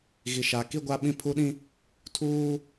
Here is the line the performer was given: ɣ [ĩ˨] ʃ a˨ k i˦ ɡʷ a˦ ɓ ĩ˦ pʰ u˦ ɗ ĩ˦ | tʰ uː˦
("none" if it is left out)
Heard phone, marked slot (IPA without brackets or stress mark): i˨